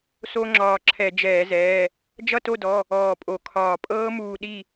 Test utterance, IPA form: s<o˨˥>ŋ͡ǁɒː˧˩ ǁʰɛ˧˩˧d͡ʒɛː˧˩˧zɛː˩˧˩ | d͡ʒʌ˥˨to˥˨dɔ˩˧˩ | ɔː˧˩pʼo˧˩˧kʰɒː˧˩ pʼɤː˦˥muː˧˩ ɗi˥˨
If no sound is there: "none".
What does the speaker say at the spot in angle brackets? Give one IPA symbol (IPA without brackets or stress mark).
o˦˥